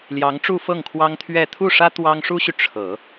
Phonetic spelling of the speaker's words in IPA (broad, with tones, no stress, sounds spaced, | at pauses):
l j ɑ˧˥ ŋ ʈ͡ʂ u˥˧ f ɤ˥˩ ŋ kʰ w ɑ˥ ŋ t̪ʰ ɥ ɛ˥˧ t̪ʰ u˥˩ ʂ ä˥ t̪ w ɑ˥ ŋ ʂ u˥ ɕ y˨ ʈ͡ʂʰ ɤ˨˩˦